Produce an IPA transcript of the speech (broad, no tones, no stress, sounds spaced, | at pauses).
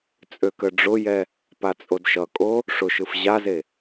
t͡sʼ ø k ə ɖ͡ʐ ʊ j ɛ | p a t͡sʼ o d ʃ ʌ kʼ o | ʂ ʊ ʃ ɯ f ʑ a z e